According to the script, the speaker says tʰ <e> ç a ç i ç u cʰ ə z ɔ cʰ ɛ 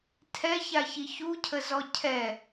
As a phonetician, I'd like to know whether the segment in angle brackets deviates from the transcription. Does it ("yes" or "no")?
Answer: yes